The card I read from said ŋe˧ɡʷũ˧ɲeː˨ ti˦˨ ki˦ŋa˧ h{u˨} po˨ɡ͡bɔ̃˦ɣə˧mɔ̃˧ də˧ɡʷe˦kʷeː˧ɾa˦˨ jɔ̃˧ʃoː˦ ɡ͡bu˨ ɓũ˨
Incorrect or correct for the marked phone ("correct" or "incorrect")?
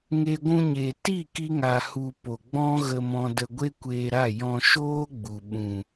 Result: incorrect